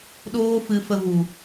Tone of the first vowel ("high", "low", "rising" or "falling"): high